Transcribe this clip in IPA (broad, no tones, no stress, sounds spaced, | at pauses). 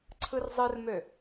ǀʰ ɯ r zˤ ɯ r m ø